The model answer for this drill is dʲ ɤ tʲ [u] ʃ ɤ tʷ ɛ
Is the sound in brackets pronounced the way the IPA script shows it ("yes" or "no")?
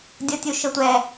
yes